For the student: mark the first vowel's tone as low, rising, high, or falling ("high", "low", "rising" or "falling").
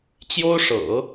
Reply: high